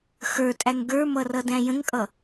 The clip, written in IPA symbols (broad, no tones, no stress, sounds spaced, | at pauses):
x ə˞ tʼ æ ŋ ɡ ə˞ m ʌ r ʌ d æ̃ j ə̃ ŋ kʼ ʌ